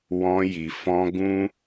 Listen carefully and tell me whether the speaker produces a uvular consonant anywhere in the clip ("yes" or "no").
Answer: no